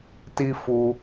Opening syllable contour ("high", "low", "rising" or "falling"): high